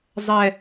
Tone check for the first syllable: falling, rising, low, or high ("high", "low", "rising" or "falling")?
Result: low